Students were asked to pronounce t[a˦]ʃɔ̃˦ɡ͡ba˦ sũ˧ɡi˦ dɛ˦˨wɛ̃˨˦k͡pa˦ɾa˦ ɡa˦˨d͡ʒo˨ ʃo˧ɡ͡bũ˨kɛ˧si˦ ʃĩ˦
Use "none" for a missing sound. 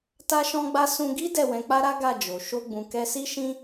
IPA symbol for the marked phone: a˦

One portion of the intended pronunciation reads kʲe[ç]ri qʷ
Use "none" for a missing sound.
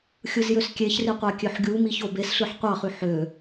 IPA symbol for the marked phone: ç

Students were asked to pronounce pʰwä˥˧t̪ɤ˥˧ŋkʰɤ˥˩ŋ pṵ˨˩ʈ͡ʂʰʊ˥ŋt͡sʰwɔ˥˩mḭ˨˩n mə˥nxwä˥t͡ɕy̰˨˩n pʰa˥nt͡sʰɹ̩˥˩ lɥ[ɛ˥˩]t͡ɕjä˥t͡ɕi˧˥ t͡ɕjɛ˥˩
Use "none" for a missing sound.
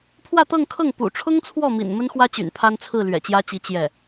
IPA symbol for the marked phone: ɛ̰˨˩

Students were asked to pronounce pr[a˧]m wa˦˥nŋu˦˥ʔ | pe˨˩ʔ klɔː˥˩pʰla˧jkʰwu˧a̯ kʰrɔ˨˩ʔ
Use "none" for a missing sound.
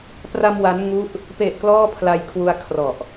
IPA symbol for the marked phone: a˧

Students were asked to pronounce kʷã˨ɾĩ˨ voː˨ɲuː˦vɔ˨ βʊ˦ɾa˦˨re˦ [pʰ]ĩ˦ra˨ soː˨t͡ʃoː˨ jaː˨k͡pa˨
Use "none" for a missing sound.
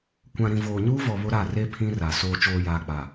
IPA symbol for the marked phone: pʰ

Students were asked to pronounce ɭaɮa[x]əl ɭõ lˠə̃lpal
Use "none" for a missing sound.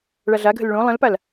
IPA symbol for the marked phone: ɡʱ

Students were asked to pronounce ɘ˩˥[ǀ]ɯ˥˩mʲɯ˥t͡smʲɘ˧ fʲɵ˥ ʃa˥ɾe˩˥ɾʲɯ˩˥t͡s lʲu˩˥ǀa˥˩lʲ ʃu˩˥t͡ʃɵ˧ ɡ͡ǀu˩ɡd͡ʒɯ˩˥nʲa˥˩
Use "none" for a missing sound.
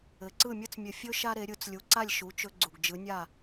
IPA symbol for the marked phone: ǀ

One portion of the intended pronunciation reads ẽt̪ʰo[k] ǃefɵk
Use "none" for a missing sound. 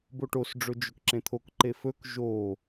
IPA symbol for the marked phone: k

